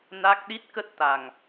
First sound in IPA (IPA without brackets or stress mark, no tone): n